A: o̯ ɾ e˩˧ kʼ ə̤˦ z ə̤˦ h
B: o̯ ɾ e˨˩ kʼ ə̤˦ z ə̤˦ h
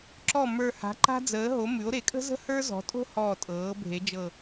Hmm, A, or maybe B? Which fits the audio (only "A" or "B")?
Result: A